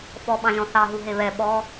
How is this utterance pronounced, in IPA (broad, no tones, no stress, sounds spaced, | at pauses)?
f ɔ ɓ ɑ̃ ʒ ɔ̃ θ ɑ ɦ u ɦ e β ɛ ɓ ɔ